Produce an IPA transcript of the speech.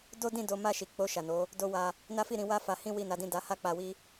d o˦ d ĩ˦˨ d o˨˦ m a˦˨ ʃ i˨ k͡p o˧ ʃ a˨ n o˨˦ | d o˧ w a˧ | n a˦ f i˦˨ ɾ ĩ˧ w a˦ f a˧ h ĩ˦ w i˦˨ n a˨˦ d ĩ˦˨ d a˨˦ h a˦ k͡p a˧ w i˦

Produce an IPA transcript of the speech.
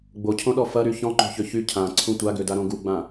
ɡ͡b o cʰ õ ɗ ɔ f ɐ ɾ y ç ɔ̃ ŋ͡ǃ o̤ ç ø ç y cʰ ã ǀʰ ũ tʷ a ɡ ø d a ɾ õ ɡ u ɡ͡b ã

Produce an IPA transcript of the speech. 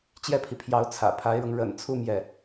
t͡ɕ j ɛ˥˩ pʰ i˩ pʰ j ɑ˧˥ ʊ̯ t͡sʰ ä̰˨˩ pʰ a˧˥ ɪ̯ ɻ ɤ˧ ŋ ɻ ə̰˨˩ n t͡sʰ u˥˧ m j ɛ˥˩

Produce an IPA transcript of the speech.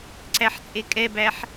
ǀ æ ħ t͡sʼ e kʼ ɛ b æ ħ

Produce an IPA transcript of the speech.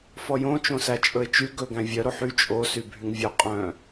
f ɔ j õ t͡ʃ õ s æ t͡ʃʼ ɵ ɪ̯ t͡ʃ y ɡ ɵ ɡ æ̃ vʲ œ ɾ o ħ y t͡ʃʼ o s y bʱ y ŋ vʲ œ qʼ œ̃

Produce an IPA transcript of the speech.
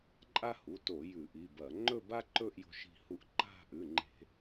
ǃʼ a˦ h u˩˧˩ t o˧˩˧ j ʉ˧˩˧ ʔ i˩˧˩ b ɐ˧˩˧ ŋ͡ǃ ɵ˦˨ b a˦ ǃ ɵ˦˨ ʔ j o̤˦ ʃ i̤˦˨ h u˦˨ ʔ ǃ a̤˦˨ ʔ ʉ˩˧˩ ŋ͡ǃ e̤˧˩˧

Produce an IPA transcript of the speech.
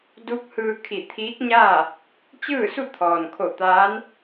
d u˧˥ k̚ h ɯː˧ kʰ i˧˩ t̪ʰ iː˧˥ k̚ ɲ aː˥˨ | t͡ɕ ɯː˥˨ s u˥˨ t̪ʰ ɔː˩ n kʰ o˧˩ t̪ aː˧˥ n

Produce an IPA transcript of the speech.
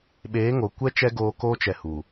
ɓ eː˨˦ ŋ o˨ kʷ ɛ˦ t͡ʃ ɛ˦ ɡ oː˧ k oː˦ t͡ʃ ɛ˧ h u˨

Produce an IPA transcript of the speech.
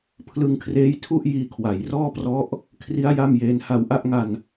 pʰ l ɯ˧ ŋ kʰ r eː˦˥ j tʰ u˥˩ ʔ j iː˧ kʰ w a˩˦ j r ɔː˥˩ p r ɔ˦˥ ʔ | kʰ r i˦˥ a̯ j a˥˩ m j eː˦˥ n h a˧ w ʔ a˥˩ ʔ ŋ a˧ n

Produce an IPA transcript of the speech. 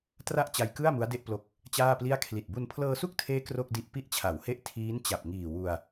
t r a˥˩ ʔ t͡ɕ a˧ j k ɯ˥˩ a̯ m u˦˥ a̯ d e˥˩ ʔ p l o˦˥ k̚ | t͡ɕ aː˥˩ p l i˥˩ a̯ kʰ l i˨˩ t̚ b u˧ n pʰ l ɤː˧ s u˥˩ k̚ tʰ eː˦˥ k r o˥˩ k̚ d i˦˥ ʔ p i˦˥ ʔ t͡ɕʰ a˩˦ w h e˦˥ ʔ tʰ iː˦˥ n t͡ɕ a˨˩ p̚ ŋ iː˨˩ w u˧ a̯

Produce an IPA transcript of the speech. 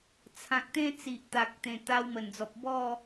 t͡sʰ ã˨ k̚ t̪ ẽ˦ t͡s i˨ ʔ t̪ a˨ k̚ t̪ ẽ˨˩ t̪ a˧ w m ə˨˩ n d͡z ɔ˨ p̚ b ɔ˥˧

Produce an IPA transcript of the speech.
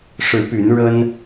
ʂ ɻ̩˨˦ p y˨˦ n ɻ ə˦ n

